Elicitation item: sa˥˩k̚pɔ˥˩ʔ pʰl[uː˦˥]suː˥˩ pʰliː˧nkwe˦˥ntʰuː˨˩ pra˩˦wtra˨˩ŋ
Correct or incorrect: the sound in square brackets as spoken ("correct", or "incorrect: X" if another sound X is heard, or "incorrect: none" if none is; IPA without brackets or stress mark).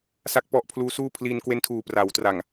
correct